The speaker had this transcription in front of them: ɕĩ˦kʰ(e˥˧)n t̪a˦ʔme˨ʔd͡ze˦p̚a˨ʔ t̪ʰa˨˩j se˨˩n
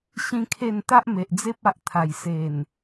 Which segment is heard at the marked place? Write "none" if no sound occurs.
e˥˧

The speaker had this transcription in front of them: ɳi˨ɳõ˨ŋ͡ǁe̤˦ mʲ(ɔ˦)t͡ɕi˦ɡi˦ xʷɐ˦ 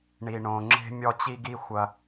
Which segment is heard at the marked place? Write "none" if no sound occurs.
ɔ˦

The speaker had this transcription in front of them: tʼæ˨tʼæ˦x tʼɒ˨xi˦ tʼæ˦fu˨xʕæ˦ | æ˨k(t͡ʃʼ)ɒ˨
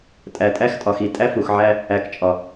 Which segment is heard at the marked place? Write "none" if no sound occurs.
t͡ʃʼ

